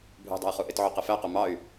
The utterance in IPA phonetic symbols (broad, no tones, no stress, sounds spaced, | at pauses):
bʱ ṳ dˤ ṳ i̯ χ u ʔ ɪ t ʕ u q ɪ f æ q u m ɑ y̯